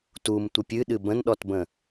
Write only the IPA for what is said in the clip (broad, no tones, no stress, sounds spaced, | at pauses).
t u m tʷ ə pʲ ɨ ɗ ɨ b ə̃ n ɗ ɔ t b ə̃